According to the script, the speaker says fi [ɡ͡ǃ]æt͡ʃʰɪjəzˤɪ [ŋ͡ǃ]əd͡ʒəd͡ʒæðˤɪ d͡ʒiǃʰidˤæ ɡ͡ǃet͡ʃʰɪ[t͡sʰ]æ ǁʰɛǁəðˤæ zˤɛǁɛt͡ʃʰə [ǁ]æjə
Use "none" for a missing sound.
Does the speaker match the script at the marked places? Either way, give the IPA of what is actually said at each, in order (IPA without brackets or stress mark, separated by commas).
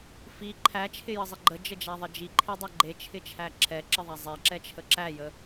ǃʰ, ɡ͡ǃ, t͡ʃʰ, ǁ